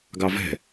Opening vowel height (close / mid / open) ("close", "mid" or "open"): open